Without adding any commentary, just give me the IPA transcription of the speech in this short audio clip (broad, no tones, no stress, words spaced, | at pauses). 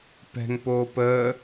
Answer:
pɛ̤ŋpoː pəː